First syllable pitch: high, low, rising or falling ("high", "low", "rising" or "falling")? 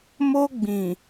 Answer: high